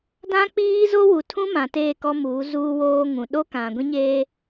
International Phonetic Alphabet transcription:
d ã˦ k͡p iː˦ z o˦ w u˨ tʰ ũ˦ m ã˨ t eː˦˨ k ɔ˦ m uː˨˦ z uː˦ w oː˦ ŋ ũ˨ ɗ o˦ k ã˨ ɡʷ ĩ˦ ɲ eː˦

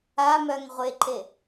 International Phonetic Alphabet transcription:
a m œ ŋ ʁʷ e ǃ e

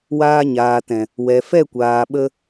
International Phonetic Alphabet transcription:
w aː˧ ɲ aː˨ t ɛ̃˨ | w ɛ˨ f ɛ˦˨ kʷ aː˨ ɓ ə˧

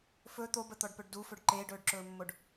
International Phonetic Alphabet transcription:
f ɵ t̪ o b ə t̪ ɔ ɖ p ɵ ɖ d u f ɵ ɖ ǃ eː ɖ ɵː ɖ ǁ ɵː mː o ɖ

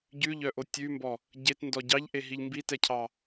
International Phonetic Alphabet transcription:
ɟ ʉ ʎ œ ʔ o tʲ ʉ m b ɔ | ɟ e t n d ɔ ɟ ɑ ʎ ʔ e ɦ i ʎ m b i t ɛ cʰ ɑ

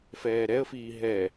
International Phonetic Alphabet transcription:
f ɛː ɾ ɛ ə̯ f iː ɦ ɛ

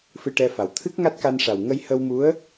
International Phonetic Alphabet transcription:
f ɨ˧ ʈ ɛ˧ f a˨˩ w t̪ʰ ɨ˦˥ k̚ ŋ a˦˥ t̚ k a˧ n ʂ a˨˩ w ŋ ə˧ j h ə˧ w m u˧˥ ə̯

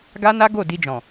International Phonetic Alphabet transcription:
ɡ a˦ n a˦ ɡ o˦˨ d i˧ d͡ʒ ɔ̃˨

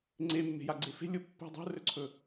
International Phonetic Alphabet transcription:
ŋ͡ǀ e mː e̤ j a ɡ͡ǀ e f e̤ lʲ o pː ɛ̤ dˤ o̤ r ɵ ǀʰ ɵ

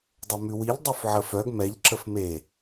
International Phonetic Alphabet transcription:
dˤ ɛ m ʉ w i ʎ dˤ u f ʕ ə f œ ɡ m ɛ ʎ ǁ ə f m e

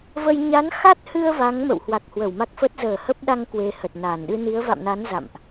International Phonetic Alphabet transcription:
v ə˧ j ɲ a˨˦ n x a˦˥ t̚ h ɨ˧ ə̯ v a˨˦ ŋ m ə̰˧˨ w h w a˨˩ k̚ h w ə˧˩ w m a˦˥ k̚ f ə˦˥ t̚ z əː˧˩ h ə˦˥ p̚ ɗ a˧ ŋ k w e˧ h ə˨˩ t̚ n aː˧˩ n ɗ ɨ˧ n i˨˦ ə̯ v a̰˧˨ m n a˨˦ n z a̰˧˨ m ʔ

